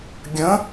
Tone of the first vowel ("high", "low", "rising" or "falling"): rising